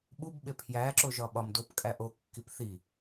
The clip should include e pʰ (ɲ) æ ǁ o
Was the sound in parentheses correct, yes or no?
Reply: no